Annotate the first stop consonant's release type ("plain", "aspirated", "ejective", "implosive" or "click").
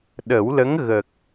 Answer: implosive